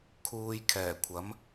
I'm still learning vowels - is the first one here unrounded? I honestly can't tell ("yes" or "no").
no